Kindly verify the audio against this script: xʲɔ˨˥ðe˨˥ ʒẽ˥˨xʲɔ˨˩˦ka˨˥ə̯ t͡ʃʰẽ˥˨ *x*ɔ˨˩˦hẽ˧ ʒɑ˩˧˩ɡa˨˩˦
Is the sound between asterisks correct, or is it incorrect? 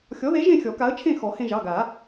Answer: correct